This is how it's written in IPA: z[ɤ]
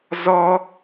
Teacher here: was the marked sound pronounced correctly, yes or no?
no